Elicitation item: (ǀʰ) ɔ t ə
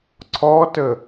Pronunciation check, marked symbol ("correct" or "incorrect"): correct